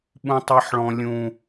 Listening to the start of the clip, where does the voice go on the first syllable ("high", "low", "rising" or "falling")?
low